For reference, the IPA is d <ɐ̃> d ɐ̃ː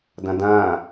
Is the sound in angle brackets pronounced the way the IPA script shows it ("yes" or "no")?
yes